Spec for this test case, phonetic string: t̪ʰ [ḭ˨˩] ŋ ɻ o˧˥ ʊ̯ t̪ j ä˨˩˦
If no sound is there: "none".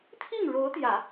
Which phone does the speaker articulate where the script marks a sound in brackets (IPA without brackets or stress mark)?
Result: i˥˩